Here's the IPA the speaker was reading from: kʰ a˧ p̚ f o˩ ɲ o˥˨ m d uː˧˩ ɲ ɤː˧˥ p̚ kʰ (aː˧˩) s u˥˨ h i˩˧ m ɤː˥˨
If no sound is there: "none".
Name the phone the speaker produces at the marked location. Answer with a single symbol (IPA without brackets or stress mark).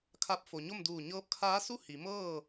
aː˧˥